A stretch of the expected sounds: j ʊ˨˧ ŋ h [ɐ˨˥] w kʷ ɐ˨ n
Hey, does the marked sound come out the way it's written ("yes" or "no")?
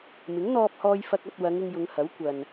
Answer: yes